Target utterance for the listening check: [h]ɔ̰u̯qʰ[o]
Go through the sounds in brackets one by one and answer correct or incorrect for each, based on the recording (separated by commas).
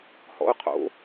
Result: correct, incorrect